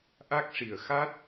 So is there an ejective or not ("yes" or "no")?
no